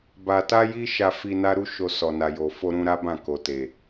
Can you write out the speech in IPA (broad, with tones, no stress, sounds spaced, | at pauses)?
b a˧ t a˦ j i˦ ʃ a˧ f i˧ n a˦ ɾ u˦ ʃ o˧ s ɔ˨ n a˨ j o˨ f o˧ ɾ ũ˧ ɾ a˦ b ã˦˨ k o˨ t e˨